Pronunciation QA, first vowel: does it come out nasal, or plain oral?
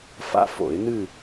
oral